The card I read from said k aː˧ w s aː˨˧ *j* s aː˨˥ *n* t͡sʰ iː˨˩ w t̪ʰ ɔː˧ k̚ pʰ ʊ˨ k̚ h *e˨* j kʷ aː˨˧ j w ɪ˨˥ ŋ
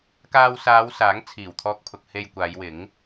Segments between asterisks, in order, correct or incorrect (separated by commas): incorrect, incorrect, correct